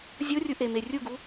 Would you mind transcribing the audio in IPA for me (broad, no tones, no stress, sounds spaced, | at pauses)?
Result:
zʲ o rʲ u ʔ e m e rʲ u ɡ u